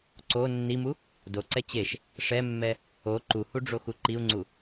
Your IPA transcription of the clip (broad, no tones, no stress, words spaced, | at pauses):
ǀo nːimu | doǀɛ t͡ɕeʃ | ʂɛmːɛ | o ǃuhuɖ͡ʐoxu ǃiu̯ŋ͡ǀu